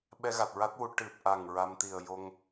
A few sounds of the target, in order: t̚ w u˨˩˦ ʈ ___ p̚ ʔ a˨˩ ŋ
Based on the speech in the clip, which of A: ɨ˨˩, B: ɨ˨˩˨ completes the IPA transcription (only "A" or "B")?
A